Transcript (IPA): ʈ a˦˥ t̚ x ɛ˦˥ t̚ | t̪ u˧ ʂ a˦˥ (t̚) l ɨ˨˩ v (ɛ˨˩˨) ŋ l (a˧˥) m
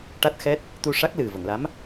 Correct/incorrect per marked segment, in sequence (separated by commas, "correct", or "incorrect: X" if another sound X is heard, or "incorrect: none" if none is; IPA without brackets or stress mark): incorrect: k̚, incorrect: ə˨˩˨, correct